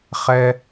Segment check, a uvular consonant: present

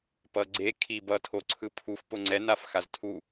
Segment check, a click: present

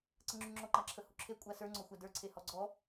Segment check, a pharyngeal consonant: absent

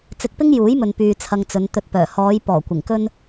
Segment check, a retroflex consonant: absent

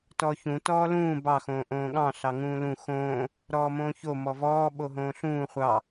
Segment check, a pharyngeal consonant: absent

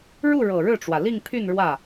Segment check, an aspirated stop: present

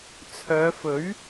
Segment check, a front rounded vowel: present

